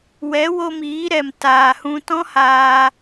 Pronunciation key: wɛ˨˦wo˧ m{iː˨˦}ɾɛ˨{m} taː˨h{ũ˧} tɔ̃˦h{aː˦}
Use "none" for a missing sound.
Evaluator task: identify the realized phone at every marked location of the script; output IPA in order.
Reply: iː˨˦, m, ũ˧, aː˧

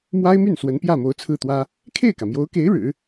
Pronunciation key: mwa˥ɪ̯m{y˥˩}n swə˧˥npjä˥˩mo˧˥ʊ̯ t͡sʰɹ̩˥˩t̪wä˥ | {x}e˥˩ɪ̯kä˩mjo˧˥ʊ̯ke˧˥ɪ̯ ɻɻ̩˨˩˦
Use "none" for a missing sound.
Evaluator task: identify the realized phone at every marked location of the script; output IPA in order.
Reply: y˥˩, kʰ

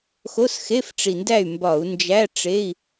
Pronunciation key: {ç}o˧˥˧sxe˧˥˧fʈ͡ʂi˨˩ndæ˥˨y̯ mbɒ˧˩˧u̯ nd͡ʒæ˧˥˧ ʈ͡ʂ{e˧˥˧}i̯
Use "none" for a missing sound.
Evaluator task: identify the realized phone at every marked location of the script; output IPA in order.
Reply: x, e˧˥˧

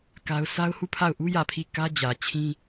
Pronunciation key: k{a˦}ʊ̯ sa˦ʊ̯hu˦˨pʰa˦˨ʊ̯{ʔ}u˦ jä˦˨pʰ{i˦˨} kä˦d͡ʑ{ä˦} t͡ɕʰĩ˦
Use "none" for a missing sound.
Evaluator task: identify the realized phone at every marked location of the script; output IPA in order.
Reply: a˦, ʔ, i˦˨, ä˨

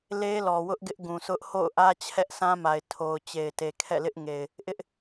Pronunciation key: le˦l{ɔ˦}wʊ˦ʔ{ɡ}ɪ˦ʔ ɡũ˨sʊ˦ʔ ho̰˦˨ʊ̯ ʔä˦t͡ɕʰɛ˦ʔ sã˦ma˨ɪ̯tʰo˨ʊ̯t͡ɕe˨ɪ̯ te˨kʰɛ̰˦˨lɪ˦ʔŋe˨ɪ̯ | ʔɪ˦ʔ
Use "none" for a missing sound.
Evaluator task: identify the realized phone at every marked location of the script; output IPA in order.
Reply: ɔ˨, ɡ

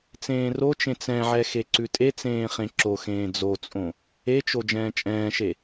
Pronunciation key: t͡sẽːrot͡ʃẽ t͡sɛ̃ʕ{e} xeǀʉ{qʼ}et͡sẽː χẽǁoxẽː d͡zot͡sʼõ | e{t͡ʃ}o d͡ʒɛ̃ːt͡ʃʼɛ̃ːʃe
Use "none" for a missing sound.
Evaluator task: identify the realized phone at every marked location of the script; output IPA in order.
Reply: ɛ, tʼ, t͡ʃ

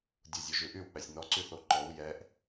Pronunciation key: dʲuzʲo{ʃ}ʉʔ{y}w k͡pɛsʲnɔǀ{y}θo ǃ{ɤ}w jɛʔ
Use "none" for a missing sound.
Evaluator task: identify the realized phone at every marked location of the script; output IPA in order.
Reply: ʒ, y, y, ɔ

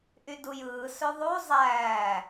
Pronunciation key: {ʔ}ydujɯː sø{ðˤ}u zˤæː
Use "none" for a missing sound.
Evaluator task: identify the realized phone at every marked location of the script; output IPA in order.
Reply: ʔ, ðˤ

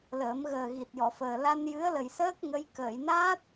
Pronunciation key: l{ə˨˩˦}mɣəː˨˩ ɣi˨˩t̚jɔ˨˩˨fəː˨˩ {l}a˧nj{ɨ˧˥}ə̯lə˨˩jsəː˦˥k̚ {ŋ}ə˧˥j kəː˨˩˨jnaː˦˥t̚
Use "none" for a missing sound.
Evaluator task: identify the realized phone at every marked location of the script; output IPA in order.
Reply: əː˨˩˦, l, ɨ˧˥, ŋ

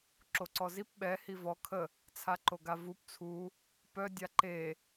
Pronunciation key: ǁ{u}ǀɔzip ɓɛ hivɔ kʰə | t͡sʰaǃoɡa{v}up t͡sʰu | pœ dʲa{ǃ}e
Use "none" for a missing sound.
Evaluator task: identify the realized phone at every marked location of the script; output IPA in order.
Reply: o, v, ǃ

